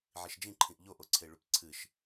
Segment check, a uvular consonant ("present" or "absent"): absent